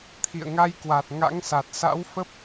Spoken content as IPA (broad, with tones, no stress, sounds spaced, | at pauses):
t̪ʰ ḭ˧˨ ə̯ ŋ a˧ j k w a˨˩ t̚ ŋ a̰˧˥ ŋ s a˨˩ t̚ s a̰˧˥ w f ə˦˥ p̚